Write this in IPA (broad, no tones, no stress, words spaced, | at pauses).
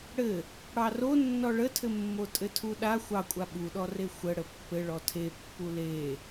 ɽɘ | ɽɑro nːɔɭətʰɘmːo tʼɘtʰuɗa xʷɑkʷʼa ɓuɗɔre xʷə ɽəpːɘ ɭɔtʰepːu le